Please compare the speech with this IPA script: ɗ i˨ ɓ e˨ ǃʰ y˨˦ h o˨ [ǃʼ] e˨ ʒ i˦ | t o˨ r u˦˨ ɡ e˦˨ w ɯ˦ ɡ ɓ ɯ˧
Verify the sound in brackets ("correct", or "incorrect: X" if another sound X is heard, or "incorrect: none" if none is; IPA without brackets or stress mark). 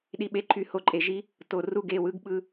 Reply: correct